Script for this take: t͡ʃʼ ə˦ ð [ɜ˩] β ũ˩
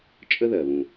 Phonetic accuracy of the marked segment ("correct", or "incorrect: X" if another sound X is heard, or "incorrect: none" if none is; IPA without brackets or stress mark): correct